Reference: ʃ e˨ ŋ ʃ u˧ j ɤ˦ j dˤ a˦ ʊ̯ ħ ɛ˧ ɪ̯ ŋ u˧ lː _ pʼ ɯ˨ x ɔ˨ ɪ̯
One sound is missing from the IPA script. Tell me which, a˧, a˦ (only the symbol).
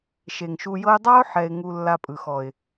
a˧